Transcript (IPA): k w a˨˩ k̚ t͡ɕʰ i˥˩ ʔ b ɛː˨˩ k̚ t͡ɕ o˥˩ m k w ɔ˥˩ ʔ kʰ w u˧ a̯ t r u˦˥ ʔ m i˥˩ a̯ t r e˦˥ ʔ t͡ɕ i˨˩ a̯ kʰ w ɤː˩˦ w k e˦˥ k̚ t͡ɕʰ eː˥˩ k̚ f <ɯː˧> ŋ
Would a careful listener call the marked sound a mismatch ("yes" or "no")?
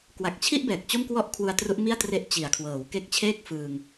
no